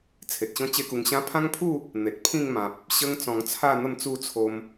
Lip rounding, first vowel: unrounded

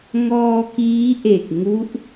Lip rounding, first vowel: rounded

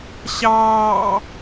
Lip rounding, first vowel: unrounded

